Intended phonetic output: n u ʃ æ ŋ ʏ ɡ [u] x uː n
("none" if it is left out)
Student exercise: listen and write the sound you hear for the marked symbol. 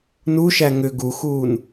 u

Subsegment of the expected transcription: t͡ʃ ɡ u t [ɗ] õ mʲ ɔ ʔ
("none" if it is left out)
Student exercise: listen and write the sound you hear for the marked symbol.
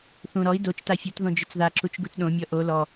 ɗ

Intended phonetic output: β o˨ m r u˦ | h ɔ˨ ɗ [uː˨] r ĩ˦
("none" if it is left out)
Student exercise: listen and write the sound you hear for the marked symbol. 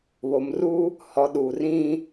uː˨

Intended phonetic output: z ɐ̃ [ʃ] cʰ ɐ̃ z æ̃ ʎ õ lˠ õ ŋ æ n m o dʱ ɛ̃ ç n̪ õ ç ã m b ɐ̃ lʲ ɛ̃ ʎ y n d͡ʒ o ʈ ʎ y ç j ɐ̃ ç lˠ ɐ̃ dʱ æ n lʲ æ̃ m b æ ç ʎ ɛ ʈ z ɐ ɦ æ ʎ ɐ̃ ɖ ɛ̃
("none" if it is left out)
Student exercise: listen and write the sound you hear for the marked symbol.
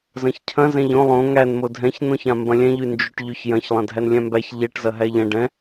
ç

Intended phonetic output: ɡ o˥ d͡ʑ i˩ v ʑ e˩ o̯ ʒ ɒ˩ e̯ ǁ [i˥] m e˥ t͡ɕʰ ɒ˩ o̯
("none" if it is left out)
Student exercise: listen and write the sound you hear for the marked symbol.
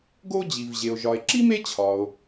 i˥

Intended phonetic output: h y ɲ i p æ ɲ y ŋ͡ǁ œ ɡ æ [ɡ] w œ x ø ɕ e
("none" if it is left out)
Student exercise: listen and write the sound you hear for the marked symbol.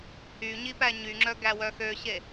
none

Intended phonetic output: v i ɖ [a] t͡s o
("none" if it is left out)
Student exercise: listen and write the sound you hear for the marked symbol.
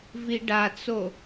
a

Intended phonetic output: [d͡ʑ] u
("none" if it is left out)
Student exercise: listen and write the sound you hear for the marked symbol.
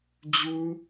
d͡ʑ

